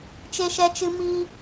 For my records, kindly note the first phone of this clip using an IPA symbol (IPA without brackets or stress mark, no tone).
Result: t͡ʃ